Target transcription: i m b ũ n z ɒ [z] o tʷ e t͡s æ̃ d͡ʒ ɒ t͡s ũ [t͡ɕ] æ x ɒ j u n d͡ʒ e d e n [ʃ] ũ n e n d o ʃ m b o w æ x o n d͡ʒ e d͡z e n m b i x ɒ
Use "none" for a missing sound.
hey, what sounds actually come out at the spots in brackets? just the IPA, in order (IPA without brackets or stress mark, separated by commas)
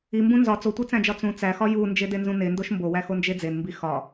t͡s, t͡s, z